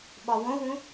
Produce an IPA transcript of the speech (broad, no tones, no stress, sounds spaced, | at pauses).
ɓ ɒ w õ w ũ